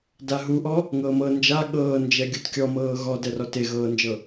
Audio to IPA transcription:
d a ɦ u ʔ ɔ | ŋ ɤː m ɤ n d͡ʒ a ɠ ɤː n d͡ʒ ɛ ɡʲ u t kʲ ɔ m ɤː ɣ ɔ d ɛ r ɔ t e ɣ ɤː n d͡ʒ ɤ

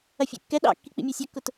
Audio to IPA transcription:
ɐ fʲ ḛ kː ɛ ɗ ɑ̰ kː i k͡p ḭ mʲ e sʲ ɛ kː ʊ t

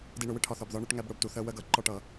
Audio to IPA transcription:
d i˧ ɳ ʊ˩˧ w ɪ˥ ʈʰ ɒ˧ θ ɒ˧ b ð ɒ˥ ɳ ɛ˥ ʈ ŋ æ˥ b ɽ ʊ˥˧ b t u˧ θ ɜ˥ w ɜ˥ ɡ ʌ˩˧ ǃ ɒ˥˧ ʈ ʌ˩˧

